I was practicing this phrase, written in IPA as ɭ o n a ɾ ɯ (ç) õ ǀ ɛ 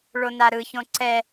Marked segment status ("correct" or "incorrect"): correct